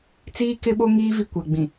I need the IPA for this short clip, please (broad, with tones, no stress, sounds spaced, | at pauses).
t͡s iː˦ k ɪ˦ ɓ o˦ ŋ iː˦ v i˦ kʷ a˨ ɡ͡b ĩ˨